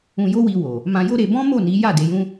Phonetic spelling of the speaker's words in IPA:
ũ˧ j o˦ w i˧ w o˨ | m ã˧ j o˦ ɾ e˧ b ɔ̃˦ m o˦˨ n i˨˦ j a˦˨ d e˨˦ j ũ˦

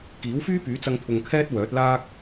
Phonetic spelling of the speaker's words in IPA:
k iː˨˥ w f yː˥ p yː˨˥ t͡s ɐ˧ ŋ t̪ʰ ʊ˧ ŋ kʰ ɛː˥ t̚ w œː˨˥ t̚ l aː˥ k̚

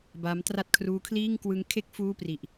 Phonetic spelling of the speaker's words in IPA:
b a˦˥ m t r a˥˩ t̚ kʰ r uː˦˥ kʰ l iː˥˩ ŋ k w ɯ˦˥ ŋ kʰ e˥˩ k̚ f uː˥˩ p r i˨˩ ʔ

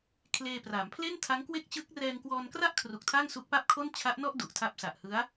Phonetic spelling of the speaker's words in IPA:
kʰ l eː˧ p r a˩˦ m pʰ l e˥˩ n tʰ a˦˥ ŋ k w e˥˩ k̚ t͡ɕ ɯ˦˥ k̚ r ɛː˧ ŋ k w ɔː˧ n k r a˥˩ ʔ kʰ r u˨˩ k̚ tʰ a˥˩ ŋ s u˦˥ k̚ p a˥˩ p̚ kʰ o˥˩ n t͡ɕʰ a˦˥ ʔ n ɔ˥˩ ʔ d u˨˩ ʔ tʰ a˦˥ p̚ s a˨˩ ʔ h ɯ˦˥ a̯

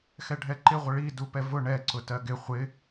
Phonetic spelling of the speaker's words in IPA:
x ɛ ɖʱ ɛ ǃ ɪ ʁʷ ə ɭ i d u p ɛ v ʊ ɳ ɛ ǀ ʊ t ɜ ɡ ɪ χʷ ɪ

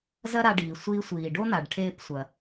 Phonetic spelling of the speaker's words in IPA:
z ɐ˥ ɾ a˧ ɖ iː˩ sʷ iː˧ sʷ iː˩ ɖ o˥ n̪ a˩ ɖ ʈʰ eː˧ p sʷ ɐ˩

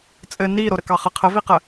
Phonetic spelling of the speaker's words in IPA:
t͡sʼ ɘ n i ɾ o ɾ ə k ɑ χ ə qʰ ə v i q ə

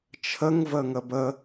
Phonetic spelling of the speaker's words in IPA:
t͡ʃʰ ə ŋ v ə ŋ ə b ə

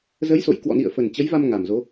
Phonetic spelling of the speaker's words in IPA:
z ə˨˦ j s o̰˧˨ j k w ɔ̰˧˨ n ḭ˧˨ ə̯ f ə˨˩ n t͡ɕ ə˨˦ j v a˧ m ŋ a˨˩ m z o˨˦

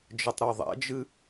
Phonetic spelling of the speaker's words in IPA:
d͡ʒ ɘ tˤ ɾ o ðˤ ɛ̰ d͡ʒ ɨ

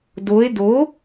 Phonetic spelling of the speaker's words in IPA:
d o e̯ d o

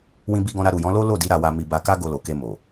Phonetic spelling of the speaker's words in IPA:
w ĩ˧ b i˧ ɡ ɔ̃˧ ɾ a˧ ɾ u˨ j ɔ̃˨˦ l o˦ l o˦˨ d i˨˦ ɾ a˧ w a˧ m i˧ b a˧ k a˦ ɡ o˧ l o˨ k e˧ m o˨

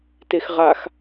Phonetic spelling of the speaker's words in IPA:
t e x ʁ a x

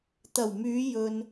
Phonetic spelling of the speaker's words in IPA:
t̪ ɐ˨˩ w m yː˨˧ j ɵ˧ n

